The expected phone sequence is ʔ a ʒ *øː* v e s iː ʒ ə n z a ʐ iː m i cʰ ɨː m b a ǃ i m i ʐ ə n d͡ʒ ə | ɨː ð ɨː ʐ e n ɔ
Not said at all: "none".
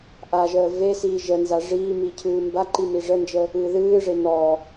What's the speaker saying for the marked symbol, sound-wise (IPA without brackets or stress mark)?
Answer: əː